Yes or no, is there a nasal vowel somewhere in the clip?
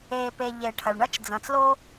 yes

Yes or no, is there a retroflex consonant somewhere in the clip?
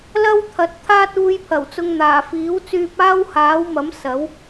no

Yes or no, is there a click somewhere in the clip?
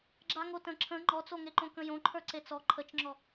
yes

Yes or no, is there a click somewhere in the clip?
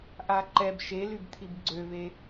yes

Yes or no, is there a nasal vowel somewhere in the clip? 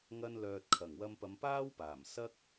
no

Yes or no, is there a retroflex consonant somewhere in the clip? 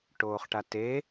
yes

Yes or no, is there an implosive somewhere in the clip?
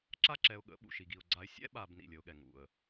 yes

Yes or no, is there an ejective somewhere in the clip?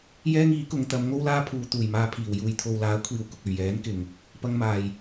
no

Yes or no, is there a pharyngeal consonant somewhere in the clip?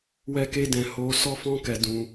no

